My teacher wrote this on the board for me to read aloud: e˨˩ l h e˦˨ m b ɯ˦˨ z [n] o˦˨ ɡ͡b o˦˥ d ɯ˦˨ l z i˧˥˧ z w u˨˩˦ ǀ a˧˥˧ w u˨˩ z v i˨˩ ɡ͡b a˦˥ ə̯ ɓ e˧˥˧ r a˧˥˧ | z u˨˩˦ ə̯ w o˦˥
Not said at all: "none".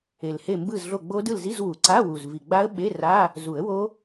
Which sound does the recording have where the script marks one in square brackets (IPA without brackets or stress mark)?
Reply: ɮ